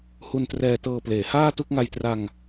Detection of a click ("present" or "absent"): absent